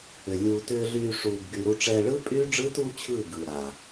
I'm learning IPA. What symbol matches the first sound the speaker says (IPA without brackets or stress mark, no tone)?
ʏ